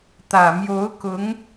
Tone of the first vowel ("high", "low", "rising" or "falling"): low